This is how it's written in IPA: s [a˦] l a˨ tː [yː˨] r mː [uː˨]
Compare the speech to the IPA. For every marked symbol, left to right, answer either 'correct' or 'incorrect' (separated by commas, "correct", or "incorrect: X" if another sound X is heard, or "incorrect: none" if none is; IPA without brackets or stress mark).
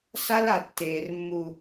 correct, incorrect: eː˨, incorrect: u˨